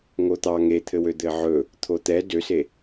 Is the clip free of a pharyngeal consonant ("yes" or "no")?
no